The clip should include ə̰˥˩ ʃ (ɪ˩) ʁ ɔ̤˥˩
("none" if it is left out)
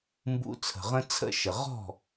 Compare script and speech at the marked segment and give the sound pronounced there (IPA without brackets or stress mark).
ə˩